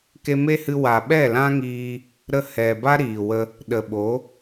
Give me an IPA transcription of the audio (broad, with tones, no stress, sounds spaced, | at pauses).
k e˧ m e˦ h ɨ˧ w a˨ ɓ ɛ˦˨ l ã˦ ŋ iː˧ | ɾ ə˦ h ɛ˨ b a˦ ɾ iː˨ w ə˧ | ɗ ə˨ ɓ o˨˦